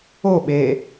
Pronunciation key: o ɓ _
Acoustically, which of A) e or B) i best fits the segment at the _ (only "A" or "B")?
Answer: A